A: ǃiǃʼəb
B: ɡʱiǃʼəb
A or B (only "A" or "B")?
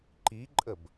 A